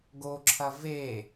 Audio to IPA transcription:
ɡ o ǁʰ ɐ v e

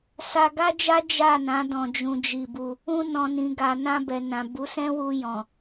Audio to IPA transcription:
s a˧ ɡ a˦ d͡ʒ a˦ d͡ʒ a˦˨ n ã˨˦ d ɔ̃˧ d͡ʒ ũ˧ d͡ʒ i˧ b u˧ | ũ˧ n ɔ̃˨ n ĩ˨ ɡ a˨ n ã˧ b ɛ˨ n ã˨ b u˨˦ s ɛ̃˦ w u˧ j ɔ̃˨

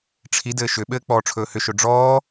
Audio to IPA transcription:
ʈ͡ʂʰ i d ɘː ʃ ʏ ɓ ɘː k͡p ɔː ʈ͡ʂʰ ɵː h ʏ ʃ ɵ ɖ͡ʐ ɔː

